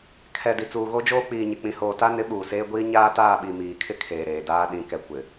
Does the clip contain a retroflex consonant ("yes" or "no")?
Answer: no